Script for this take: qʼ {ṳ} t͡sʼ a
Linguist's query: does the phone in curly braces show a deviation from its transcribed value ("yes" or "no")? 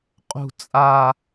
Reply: no